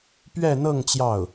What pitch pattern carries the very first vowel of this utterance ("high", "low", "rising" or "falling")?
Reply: falling